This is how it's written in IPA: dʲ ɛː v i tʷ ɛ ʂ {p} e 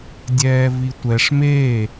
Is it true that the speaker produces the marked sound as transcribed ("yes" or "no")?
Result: no